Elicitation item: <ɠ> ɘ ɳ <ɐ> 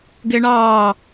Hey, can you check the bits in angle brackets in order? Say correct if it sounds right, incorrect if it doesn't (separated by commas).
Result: incorrect, incorrect